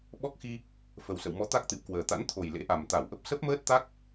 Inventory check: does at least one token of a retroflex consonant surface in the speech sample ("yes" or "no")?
no